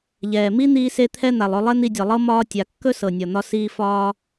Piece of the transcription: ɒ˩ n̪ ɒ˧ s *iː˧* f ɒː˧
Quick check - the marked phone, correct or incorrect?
correct